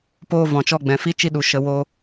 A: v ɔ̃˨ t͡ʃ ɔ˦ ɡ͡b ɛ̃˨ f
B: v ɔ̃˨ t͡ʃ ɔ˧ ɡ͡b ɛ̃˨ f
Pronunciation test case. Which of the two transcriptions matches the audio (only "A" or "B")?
B